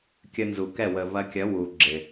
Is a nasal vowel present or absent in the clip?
absent